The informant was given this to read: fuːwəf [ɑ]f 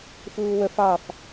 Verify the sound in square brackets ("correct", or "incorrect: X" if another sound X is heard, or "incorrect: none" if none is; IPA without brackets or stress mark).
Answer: correct